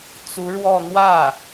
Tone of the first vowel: rising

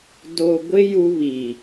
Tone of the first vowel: low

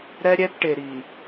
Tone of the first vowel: high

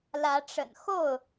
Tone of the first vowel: rising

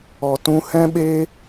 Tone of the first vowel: low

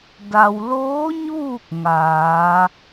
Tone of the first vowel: low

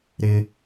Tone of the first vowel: high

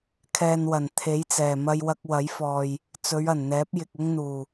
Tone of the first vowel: low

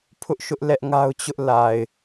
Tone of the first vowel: high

